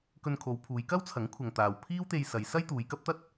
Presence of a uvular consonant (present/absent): absent